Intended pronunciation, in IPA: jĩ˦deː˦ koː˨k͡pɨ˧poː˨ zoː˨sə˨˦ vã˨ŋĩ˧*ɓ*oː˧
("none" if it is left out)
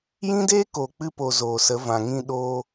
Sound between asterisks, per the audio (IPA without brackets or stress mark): ɗ